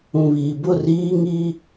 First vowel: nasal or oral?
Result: nasal